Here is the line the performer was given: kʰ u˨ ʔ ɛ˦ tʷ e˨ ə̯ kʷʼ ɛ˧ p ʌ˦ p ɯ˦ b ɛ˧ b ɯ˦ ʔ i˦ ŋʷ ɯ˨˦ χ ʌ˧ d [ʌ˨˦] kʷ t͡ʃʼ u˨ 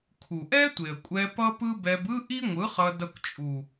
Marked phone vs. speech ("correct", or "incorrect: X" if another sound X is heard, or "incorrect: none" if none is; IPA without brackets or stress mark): incorrect: ʌ˧